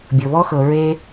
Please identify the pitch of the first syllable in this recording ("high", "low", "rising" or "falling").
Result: low